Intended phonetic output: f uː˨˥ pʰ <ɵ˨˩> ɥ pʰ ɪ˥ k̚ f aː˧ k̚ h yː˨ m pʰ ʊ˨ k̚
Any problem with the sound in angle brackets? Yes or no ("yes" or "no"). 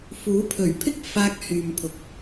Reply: no